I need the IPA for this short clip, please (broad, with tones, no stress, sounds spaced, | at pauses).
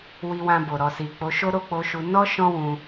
w i˧ w ã˧ b o˨ ɾ ɔ˨ s i˨ k͡p o˨˦ ʃ o˦ ɾ o˦˨ k͡p o˧ ʃ u˧ n ɔ˦ ʃ ɔ̃˦ w ũ˧